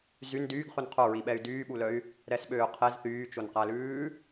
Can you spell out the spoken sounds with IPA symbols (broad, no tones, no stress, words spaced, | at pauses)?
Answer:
zyn dyːɡχʉn qʰoɹiɓɛy̯ dyːɓulœy̯ | ɾɛsɓøːqʰez θyːt͡ʃonqælʉː